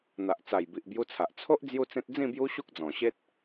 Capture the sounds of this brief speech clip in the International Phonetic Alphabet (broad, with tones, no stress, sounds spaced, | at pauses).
n̪ a˨ ʔ t͡s a˨˩ j b i˨ ʔ b j u˧ t͡sʰ a˨ ʔ t͡sʰ o˦ ʔ d͡z j u˥˧ t͡s ẽ˦ t̚ d͡z ĩ˥˧ b j u˦ ɕ u˦ k̚ d͡z ɔ̃˨˩ ɕ e˦ t̚